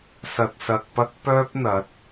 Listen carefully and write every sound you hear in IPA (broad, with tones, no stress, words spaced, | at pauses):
sɐ˨t̚sɐ˨k̚pɐ˥k̚ pœː˥p̚n̪ɐ˨˥t̚